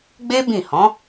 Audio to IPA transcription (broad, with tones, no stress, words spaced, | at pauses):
ɡ͡be˦ bĩ˦˨ hɔ̃˨˦